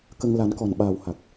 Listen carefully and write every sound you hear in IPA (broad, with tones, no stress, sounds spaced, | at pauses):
k ə˧ ŋ l a˨˩˦ n k ɔ˨˩ n ɓ aː˨˩ w h a˨˩ k̚